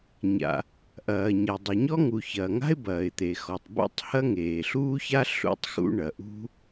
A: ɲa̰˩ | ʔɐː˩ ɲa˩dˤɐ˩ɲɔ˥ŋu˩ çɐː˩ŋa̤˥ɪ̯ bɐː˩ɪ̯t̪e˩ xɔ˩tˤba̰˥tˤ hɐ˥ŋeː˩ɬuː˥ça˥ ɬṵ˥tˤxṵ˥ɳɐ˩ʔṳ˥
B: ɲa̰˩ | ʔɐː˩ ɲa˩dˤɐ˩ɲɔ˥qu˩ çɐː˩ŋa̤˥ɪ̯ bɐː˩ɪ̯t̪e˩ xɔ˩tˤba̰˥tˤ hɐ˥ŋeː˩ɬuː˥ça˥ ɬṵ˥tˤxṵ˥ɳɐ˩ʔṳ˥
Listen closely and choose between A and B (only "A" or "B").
A